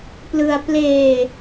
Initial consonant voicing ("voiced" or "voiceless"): voiceless